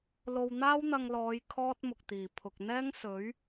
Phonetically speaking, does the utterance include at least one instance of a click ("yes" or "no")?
no